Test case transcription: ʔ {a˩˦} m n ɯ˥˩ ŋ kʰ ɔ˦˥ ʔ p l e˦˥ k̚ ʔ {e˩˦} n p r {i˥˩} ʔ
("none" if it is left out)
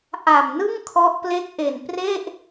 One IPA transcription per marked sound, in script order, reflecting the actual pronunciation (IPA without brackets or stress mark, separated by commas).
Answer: a˨˩, e˨˩, e˥˩